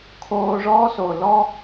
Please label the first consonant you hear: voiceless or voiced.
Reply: voiceless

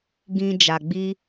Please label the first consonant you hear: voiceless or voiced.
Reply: voiced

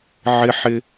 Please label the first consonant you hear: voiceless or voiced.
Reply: voiced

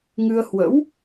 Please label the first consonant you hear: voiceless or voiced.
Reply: voiced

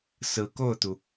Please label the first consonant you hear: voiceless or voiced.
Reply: voiceless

